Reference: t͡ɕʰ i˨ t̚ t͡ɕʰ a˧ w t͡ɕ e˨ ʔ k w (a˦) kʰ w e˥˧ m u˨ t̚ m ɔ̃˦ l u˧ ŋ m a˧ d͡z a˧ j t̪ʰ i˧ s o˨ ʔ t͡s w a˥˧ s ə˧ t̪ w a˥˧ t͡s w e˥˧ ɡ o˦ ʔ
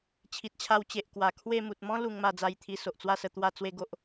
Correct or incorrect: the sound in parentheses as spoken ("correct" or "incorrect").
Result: incorrect